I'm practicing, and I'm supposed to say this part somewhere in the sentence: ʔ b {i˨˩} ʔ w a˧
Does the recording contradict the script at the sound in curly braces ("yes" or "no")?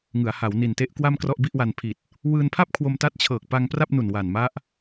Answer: yes